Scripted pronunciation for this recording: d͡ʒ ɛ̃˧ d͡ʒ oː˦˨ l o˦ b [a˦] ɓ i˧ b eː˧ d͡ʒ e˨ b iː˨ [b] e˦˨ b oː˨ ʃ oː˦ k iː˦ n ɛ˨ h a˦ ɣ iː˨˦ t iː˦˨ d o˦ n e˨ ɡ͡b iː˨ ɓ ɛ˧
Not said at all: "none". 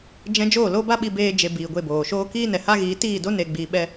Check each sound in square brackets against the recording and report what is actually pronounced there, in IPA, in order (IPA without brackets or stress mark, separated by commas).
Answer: a˦, ɡʷ